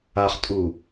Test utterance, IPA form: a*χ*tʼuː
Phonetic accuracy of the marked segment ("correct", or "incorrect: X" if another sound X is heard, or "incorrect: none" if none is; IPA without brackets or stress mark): correct